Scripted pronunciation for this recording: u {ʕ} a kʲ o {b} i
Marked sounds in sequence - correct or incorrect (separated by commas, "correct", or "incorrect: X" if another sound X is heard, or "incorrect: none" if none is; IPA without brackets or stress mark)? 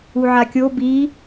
correct, correct